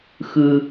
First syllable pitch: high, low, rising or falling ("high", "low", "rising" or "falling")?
low